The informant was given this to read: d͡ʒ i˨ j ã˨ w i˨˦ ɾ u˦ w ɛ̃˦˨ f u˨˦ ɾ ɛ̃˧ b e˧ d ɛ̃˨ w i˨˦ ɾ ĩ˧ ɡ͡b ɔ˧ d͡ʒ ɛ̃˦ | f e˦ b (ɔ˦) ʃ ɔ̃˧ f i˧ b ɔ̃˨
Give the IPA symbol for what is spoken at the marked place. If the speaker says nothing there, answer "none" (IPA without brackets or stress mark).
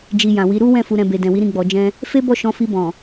ɔ˦˨